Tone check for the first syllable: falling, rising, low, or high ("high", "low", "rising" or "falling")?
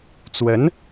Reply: rising